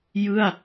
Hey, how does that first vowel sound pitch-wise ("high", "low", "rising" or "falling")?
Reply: falling